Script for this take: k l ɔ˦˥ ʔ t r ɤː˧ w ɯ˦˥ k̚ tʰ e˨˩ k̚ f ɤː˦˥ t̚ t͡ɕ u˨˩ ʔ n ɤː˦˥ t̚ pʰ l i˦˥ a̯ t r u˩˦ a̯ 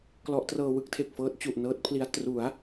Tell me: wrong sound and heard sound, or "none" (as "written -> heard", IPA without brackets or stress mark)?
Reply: none